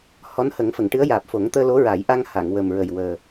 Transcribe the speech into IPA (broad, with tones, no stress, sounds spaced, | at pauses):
h ɔ˧˥ n h ə˨˩˦ ŋ f ə˨˩˨ ŋ ʈ ɨ˧˥ ə̯ j aː˨˩ p̚ f o˨˩˦ ŋ t̪ əː˧ l o˧˥ ɹ aː˨˩˦ j ʔ a˧ ŋ h a˨˩˨ ŋ w ə˨˩ m ɹ ə˨˩ j w əː˨˩